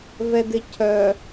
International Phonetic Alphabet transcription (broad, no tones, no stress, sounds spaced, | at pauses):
v ɛ d ɪ cʰ œ